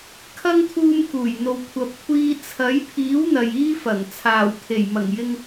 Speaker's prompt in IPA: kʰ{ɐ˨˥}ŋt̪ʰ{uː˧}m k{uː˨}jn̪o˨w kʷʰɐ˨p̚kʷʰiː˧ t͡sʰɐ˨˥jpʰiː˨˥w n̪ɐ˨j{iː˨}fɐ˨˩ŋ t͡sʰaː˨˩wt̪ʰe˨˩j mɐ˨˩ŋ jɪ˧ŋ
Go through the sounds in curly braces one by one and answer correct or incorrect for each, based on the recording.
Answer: incorrect, correct, incorrect, incorrect

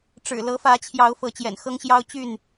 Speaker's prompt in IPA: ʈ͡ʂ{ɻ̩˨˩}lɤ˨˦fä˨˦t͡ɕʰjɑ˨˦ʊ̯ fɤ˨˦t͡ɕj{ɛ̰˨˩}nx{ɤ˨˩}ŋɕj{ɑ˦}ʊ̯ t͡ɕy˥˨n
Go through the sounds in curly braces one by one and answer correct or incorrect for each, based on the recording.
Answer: correct, correct, incorrect, correct

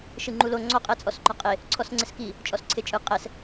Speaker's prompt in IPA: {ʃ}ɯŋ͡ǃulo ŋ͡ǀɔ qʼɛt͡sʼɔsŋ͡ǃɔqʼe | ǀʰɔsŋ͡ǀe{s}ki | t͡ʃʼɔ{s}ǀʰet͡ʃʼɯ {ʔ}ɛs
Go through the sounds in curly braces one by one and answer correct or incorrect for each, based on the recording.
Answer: correct, correct, correct, incorrect

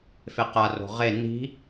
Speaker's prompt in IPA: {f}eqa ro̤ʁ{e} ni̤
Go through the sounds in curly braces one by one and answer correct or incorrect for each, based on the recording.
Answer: correct, correct

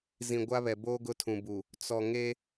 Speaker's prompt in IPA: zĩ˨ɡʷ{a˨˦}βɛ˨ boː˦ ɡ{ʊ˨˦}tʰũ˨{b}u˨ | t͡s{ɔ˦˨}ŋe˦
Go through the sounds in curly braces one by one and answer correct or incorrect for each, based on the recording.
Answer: incorrect, incorrect, correct, incorrect

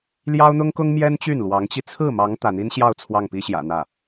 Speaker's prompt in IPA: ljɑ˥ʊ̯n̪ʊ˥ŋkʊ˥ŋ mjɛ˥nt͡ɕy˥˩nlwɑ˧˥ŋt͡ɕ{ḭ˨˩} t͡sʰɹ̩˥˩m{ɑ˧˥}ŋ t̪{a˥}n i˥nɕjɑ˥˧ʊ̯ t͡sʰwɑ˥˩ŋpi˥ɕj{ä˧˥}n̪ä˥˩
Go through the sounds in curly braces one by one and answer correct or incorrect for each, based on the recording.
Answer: incorrect, correct, incorrect, incorrect

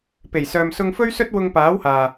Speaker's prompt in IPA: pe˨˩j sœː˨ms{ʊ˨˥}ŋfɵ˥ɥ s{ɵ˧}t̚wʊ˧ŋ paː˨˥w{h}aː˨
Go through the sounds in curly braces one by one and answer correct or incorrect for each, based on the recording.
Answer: incorrect, incorrect, correct

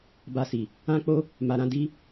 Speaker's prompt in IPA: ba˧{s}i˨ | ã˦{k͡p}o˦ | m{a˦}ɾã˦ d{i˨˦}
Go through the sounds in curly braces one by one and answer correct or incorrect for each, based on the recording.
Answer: correct, correct, incorrect, incorrect

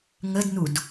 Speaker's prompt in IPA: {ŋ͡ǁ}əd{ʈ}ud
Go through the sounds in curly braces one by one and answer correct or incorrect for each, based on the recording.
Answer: incorrect, incorrect

